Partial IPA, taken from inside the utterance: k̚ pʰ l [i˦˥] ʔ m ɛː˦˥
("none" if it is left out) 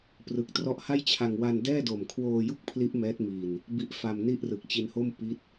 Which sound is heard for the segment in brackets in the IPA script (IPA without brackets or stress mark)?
i˦˥